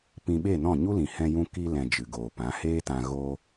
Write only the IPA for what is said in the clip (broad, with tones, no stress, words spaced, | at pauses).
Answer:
pĩ˧ɓe˦˨nɔ̃˦˨ ɲu˦lĩ˨ hɛ̃˧jũ˧ ki˧lɛ̃˨ d͡ʒɨ˨ɡoː˨pã˨˦ heː˦tã˧ ɣo˦